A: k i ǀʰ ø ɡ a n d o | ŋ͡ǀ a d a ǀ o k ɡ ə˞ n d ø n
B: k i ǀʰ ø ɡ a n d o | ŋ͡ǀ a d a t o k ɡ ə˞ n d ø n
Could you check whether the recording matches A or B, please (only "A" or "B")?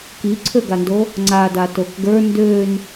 B